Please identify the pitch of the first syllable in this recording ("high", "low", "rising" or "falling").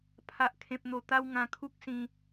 low